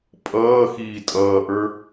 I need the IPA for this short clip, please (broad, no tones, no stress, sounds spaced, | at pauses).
pʼ ʌː x iː tʼ ʌː ʔ ə˞